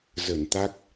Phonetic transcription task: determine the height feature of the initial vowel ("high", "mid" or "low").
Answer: mid